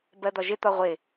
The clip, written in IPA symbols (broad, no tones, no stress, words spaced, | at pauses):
bɜd̪ɒʒɪ t̪ɒʁʷɪ